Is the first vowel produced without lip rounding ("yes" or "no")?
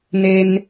yes